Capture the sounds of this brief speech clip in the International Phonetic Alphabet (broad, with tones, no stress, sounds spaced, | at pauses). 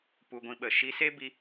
p u˧ ɡʷ ĩ˧ ɓ ə˨ ʃ i˧ s e˦ b i˦